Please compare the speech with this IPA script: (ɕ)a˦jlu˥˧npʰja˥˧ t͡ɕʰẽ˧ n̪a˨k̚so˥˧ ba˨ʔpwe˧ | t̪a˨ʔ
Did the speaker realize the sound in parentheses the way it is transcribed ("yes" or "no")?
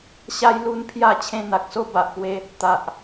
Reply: yes